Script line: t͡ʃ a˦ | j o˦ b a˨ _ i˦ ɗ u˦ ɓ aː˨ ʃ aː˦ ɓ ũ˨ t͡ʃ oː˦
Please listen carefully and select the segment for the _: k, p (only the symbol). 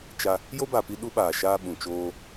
p